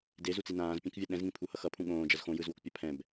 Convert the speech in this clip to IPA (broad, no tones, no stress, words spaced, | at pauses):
dezut͡si nãːzpʲɛ̃kvʲa ɗɛ̃zŋĩpʰuhʌ xʌpʰũ ɠõːd͡ʒʌz xõjɯzwokpʲa pʰɛ̃b